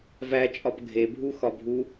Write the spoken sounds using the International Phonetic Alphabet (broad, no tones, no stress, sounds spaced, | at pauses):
v æ t͡ʃʼ ɒ p ɡʱ e bʱ u x ɒ bʱ u